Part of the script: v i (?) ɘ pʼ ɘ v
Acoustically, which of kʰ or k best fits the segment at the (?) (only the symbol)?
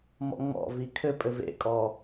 kʰ